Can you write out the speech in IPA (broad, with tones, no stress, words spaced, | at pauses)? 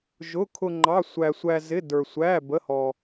ʒʊ˧˥˧ kʰʊ˧ ŋ͡ǃɑ˧˥˧ sʷæ˧sʷæ˧zɪ˧˥˧ də˞˧sʷæ˧˥˧bə˧˥˧hɔ˧